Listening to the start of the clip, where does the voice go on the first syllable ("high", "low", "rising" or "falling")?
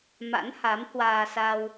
rising